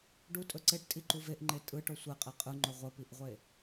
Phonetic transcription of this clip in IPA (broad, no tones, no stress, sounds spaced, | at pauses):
ɖ u tʼ ɵ ǀ e ʈ tʼ i ǃ u v e ʔ ŋ͡ǃ e tʼ ɯ ʈ o sʷ e qʼ e qʼ ɯ ŋ͡ǃ ɵ ʁʷ ə p i ʔ ʁʷ e